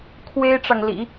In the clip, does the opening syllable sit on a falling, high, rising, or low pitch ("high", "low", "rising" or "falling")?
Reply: high